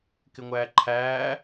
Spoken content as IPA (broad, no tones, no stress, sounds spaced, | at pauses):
k ɪ ŋʷ æː ǃʰ æː